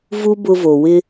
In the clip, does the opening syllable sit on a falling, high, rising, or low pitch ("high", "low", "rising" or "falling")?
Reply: high